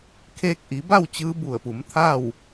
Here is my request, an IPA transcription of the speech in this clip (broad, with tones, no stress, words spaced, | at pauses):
kʰeː˧k̚ʔi˩˧ba˥˨w t͡ɕɯː˧˥bu˧˩ə̯pu˩˧m t̪ʰa˥˨w